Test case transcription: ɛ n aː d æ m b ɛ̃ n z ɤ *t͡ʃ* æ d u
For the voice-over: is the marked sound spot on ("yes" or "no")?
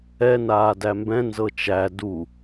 yes